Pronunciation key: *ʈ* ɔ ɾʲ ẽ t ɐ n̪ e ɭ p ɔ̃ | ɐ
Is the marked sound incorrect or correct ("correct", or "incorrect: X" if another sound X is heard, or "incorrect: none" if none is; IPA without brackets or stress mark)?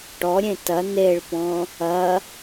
correct